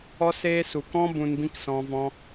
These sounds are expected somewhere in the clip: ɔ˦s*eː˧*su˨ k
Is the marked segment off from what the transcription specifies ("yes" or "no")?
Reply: yes